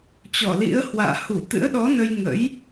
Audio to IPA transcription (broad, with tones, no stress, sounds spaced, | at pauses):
t͡ɕ ɔ˧˩ l ḭ˧˥ ə̯ h w a̰ː˧˨ h u˧˩ t̪ ɨ̰˧˥ ə̯ ɗ ɔ˨˦ n ə˧ j ŋ ə̰˧˥ j